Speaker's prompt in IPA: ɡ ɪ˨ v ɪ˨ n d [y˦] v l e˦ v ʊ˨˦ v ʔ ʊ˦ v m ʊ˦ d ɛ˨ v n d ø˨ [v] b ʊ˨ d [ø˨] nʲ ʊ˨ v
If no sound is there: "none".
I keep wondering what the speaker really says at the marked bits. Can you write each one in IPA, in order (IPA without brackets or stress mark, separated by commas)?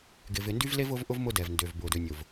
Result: y˦, v, ø˨